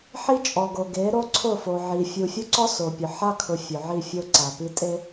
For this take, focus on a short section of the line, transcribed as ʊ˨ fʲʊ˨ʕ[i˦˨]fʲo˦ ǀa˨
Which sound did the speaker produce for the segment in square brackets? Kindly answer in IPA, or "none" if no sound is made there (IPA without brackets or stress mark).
i˦˨